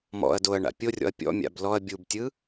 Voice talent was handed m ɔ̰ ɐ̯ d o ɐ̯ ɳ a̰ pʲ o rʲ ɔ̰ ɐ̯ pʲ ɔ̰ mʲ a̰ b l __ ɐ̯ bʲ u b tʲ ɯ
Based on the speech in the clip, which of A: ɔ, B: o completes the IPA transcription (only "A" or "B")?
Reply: A